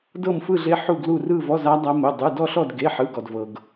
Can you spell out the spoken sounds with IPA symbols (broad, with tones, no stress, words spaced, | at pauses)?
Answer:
dɤ˥˧mfɯ˥˧ɮe˦˥ ħu˥˧ɡlu˥˧ rɯ˥˧vɔ˧˥˧za˦˥ dˤa˦˥mo˧˥˧dˤɯ˧˥˧ dɔ˥˧ɬɔ˥˧d ɡe˧˥˧ħɯ˧˥˧ɡɔ˧dvɤ˧ɡ